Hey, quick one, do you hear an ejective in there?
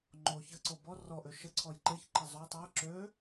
no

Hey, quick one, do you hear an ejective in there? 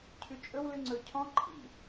yes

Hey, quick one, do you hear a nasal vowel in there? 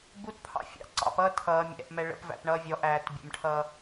no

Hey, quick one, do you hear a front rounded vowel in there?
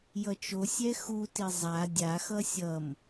no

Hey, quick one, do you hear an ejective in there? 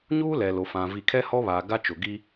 no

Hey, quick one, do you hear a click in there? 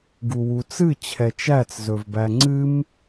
yes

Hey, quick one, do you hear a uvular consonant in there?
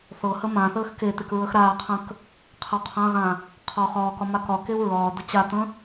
yes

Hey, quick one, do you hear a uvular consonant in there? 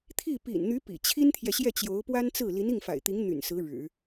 no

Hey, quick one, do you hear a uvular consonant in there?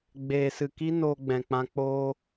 no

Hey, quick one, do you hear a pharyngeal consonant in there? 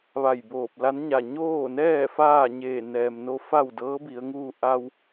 no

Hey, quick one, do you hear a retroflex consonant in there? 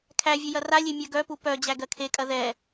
no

